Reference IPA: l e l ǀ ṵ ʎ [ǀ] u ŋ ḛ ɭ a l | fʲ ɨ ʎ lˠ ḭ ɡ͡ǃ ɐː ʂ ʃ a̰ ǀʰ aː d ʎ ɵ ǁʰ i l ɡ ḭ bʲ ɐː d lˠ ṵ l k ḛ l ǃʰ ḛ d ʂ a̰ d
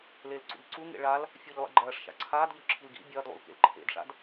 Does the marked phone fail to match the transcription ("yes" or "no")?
no